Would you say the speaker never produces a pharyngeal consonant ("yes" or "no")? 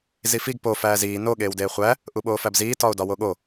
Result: yes